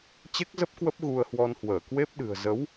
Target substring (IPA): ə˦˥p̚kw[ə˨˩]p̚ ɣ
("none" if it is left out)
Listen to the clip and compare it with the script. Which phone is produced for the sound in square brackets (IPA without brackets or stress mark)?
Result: ə˦˥